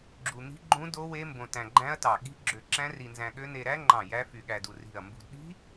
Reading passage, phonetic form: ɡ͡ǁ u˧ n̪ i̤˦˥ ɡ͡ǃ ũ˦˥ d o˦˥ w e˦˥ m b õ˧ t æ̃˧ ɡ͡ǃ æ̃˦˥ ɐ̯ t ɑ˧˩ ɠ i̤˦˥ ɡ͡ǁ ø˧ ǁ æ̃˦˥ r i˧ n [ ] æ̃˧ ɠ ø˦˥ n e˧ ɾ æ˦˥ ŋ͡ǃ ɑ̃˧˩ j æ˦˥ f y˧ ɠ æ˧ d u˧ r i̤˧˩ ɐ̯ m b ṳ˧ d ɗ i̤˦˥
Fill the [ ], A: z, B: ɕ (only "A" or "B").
A